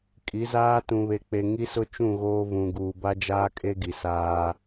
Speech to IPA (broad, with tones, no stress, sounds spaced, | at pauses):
kʼ i˨˦ z aː˦ t ũ˨ β e˨ k͡p e˨ ŋ i˦ s ʊ˦ t͡ʃ ũ˦˨ ɣ oː˦ v ũ˨ ɡ uː˨ b a˦ d͡ʒ aː˦ kʼ e˦ ɡ i˨ s aː˦